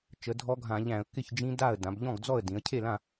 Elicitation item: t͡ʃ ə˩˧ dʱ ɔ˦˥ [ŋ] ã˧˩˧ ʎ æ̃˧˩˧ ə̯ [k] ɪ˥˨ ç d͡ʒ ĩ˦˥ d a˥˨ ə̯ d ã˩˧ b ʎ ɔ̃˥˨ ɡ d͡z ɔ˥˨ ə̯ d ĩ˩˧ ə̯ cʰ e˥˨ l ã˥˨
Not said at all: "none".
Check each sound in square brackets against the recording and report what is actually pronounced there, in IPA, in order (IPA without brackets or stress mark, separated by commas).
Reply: ɡʱ, k